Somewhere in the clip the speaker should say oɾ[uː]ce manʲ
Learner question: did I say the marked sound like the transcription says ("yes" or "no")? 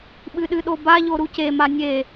no